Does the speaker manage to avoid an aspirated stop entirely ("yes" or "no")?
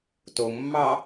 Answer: yes